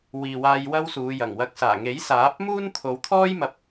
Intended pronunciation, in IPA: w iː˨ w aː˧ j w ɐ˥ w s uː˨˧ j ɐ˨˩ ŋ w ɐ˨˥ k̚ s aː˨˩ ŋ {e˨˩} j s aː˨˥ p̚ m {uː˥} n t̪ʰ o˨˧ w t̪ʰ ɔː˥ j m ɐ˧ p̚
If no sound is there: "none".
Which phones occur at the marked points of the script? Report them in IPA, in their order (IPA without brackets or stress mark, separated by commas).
e˨˥, uː˥